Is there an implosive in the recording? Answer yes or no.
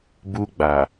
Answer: no